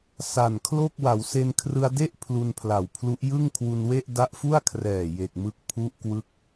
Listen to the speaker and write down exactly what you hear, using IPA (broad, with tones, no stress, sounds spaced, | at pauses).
s a˨˩ n kʰ l o˥˩ k̚ w a˩˦ w s e˧ n kʰ r ɯ˧ a̯ d e˥˩ ʔ pʰ l u˧ n pʰ l a˨˩ w pʰ l u˦˥ ʔ j ɯ˥˩ ŋ kʰ w u˧ n w e˥˩ ʔ d a˦˥ ʔ f u˥˩ a̯ kʰ r ɛː˨˩ j e˨˩ k̚ m ɯ˦˥ k̚ pʰ u˦˥ ʔ k w ɯ˦˥ k̚